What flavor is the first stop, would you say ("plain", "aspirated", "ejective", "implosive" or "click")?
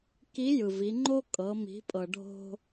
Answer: plain